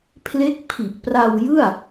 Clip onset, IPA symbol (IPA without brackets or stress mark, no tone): pʰ